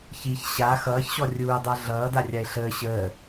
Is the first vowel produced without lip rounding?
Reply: yes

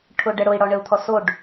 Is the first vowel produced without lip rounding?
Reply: no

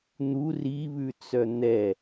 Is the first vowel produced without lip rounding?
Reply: no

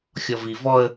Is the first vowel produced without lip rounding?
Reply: no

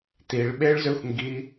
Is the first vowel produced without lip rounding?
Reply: yes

